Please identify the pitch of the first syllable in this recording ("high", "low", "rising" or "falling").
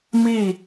falling